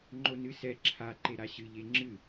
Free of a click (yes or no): no